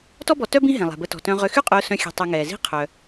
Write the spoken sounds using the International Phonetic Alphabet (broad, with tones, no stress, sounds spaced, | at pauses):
t ɔ˥ b ɔ˨ t œ˥ b ĩ˦ ɦ ɛ̃˩ lˠ ɛ̤˩ b ə˨ t ɔ̤˩ t œ̃˨ ʁ ʏ˨ x y˦ qʼ ʊː˨ s œ̃˨ xʲ ɛ̤˨ tˤ ø˨ ŋ ɛː˩ z i̤˦ qʰ œ˩